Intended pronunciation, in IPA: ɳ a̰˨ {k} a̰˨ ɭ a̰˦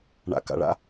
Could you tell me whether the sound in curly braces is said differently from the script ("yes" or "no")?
no